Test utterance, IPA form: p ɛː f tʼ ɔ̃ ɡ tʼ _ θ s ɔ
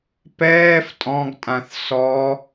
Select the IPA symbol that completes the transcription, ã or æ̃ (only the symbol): ã